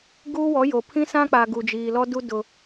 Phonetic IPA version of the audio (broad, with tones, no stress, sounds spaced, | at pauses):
ɡ uː˦ w ɔ˨˦ j o˨ pʰ ĩ˦ s ã˦ k͡p a˨ ɡ u˨ d͡ʒ iː˨ l ɔ˦ d u˦ d ʊ˦